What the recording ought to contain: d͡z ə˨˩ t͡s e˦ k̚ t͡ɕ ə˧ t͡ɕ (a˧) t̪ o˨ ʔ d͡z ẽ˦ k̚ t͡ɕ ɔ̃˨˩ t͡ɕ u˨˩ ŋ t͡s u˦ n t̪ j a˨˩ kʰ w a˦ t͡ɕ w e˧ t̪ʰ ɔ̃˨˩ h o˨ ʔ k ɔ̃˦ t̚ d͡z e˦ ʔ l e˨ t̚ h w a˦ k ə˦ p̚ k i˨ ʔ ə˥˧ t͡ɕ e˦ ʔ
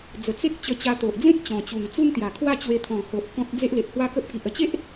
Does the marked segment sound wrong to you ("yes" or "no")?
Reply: no